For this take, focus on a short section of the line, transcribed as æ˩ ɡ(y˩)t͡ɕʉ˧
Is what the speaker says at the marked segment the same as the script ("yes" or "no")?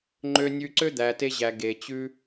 no